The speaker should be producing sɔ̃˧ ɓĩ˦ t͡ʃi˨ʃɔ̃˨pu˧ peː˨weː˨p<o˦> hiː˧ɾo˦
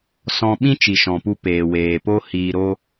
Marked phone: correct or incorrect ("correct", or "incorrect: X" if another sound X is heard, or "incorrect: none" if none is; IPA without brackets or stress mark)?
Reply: correct